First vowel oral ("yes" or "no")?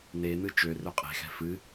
yes